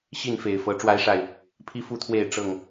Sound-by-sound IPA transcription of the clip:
ɕ i˥˨ n f e˨˩ ɪ̯ f ɤ˨˦ ʈ͡ʂ w a˨˦ ɪ̯ ʂ a˨˩ ɪ̯ | pʰ i˦ f u˥˨ t̪ʰ w e˥˨ ɪ̯ ʈ͡ʂ ɤ˥˨ ŋ

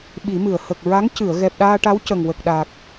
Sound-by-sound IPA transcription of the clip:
ɓ i˨˩˦ m ɨ˨˩˨ ə̯ h ə˨˩ k̚ ɹ a˧˥ ŋ c ɨ˨˩˨ ə̯ ɣ ɛ˨˩ p̚ ɗ aː˧ ʈ a˧˥ w c ə˨˩ ŋ w ə˨˩ k̚ ɗ aː˨˩ k̚

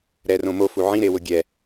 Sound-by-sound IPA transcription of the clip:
ɾ ɛ r õ m o f u ʕ ĩ ɾ e w ʊ ɡʲ ɛ

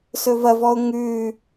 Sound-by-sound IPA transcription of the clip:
s ɵ v ɐ v ɔ ʊ̯ ŋ ʉ

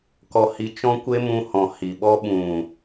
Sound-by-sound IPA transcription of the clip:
k ɔ˧ h i˧ t͡ʃ ɔ̃˦ kʷ e˦ m ũ˧ h ɔ̃˨ h i˨ ɓ ɔ˦ ɓ ũ˨

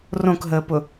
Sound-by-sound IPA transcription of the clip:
r õ k ɦ əː p ʊ

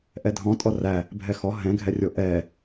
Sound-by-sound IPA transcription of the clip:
ʔ ɛ dʱ ɔ̃ tʼ ɔ r æ | bʱ ɛ x ɔ ɦ ɛ̃ ɡʱ ɛ rʲ o ʔ ɛ

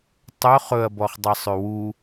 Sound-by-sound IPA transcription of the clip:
tˤ ɵ χ ɵ ɐ̯ b ɔ χ dˤ ɑ sˤ ʉ w u

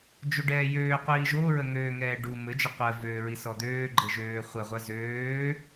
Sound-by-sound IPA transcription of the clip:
d͡ʒ o ɖ ɛː j øː qʷ iː ʒ o ɹ ə ŋ øː ŋ ɛː ɖ u m ɘ d͡ʒ ə qʷ ɜ v øː ɹ i s ɔ d̪ øː ɡ͡ǃ ɘ ʒ øː χʷ ə ʁʷ ɜ z øː

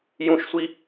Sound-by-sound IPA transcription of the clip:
j ũ ʃ sʷ i

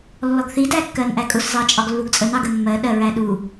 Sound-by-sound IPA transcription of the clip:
lː ɔ ɡ θ i d æ kː ɜ n ʔ æ kʼ ʊ s z ɑ t͡ʃʼ ɒ ɡ lː u ɡ t͡sʼ ə n ɑ ɡ ə mː ɜ ɗ ɜ ɹ æ ɗ u

